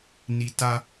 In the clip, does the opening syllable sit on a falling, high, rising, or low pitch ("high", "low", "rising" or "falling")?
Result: low